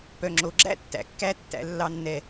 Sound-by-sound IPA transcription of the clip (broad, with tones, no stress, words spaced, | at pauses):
pœ˨ŋ͡ǁo˨ɡ͡ǁæ̰˦tːæ̰˨ kːæ˦tːæ̰˨˦ lːɑ˦nːɛ˦